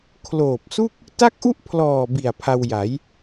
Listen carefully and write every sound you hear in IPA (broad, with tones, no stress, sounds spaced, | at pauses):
kʰ l oː˨˩ p̚ s u˥˩ k̚ | t a˥˩ k̚ ʔ u˥˩ ʔ pʰ l ɔː˨˩ b i˨˩ a̯ pʰ a˧ w j a˩˦ j